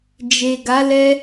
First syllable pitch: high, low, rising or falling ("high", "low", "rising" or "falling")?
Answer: low